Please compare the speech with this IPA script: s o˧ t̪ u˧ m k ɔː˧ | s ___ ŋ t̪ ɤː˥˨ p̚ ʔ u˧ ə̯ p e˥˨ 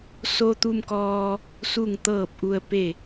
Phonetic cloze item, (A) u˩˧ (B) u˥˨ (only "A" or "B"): B